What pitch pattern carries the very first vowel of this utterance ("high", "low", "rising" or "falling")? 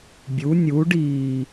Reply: rising